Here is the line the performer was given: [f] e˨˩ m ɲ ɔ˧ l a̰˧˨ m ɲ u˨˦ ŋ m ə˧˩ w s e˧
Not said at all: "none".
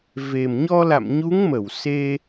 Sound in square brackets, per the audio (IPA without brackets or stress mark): v